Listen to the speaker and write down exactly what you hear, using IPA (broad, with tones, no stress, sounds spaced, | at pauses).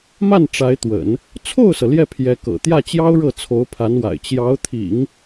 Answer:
m a˥˩ n ʈ͡ʂ a˧˥ ɪ̯ t̪ w ə̰˨˩˦ n | t͡sʰ o˥˩ ʊ̯ s ɤ˩ l j ɛ˥˩ pʰ j ɛ˧˥ k ɤ̰˨˩ t̪ j ä˥˩ t͡ɕ j ɑ˥ ʊ̯ ɻ ɤ˥˩ t͡sʰ o˧˥ ʊ̯ pʰ a˧˥ n w a̰˨˩ ɪ̯ t͡ɕ j ɑ˧˥ ʊ̯ t̪ʰ ḭ˨˩˦ ŋ